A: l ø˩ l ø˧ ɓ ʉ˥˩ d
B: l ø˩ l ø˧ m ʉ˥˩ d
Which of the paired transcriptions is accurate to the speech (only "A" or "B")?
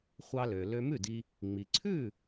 B